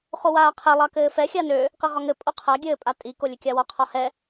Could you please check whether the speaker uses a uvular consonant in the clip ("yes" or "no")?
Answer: yes